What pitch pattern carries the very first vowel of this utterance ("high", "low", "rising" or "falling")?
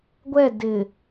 falling